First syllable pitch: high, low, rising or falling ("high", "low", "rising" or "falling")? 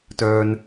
low